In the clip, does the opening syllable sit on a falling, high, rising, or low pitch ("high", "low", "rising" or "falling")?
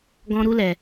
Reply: high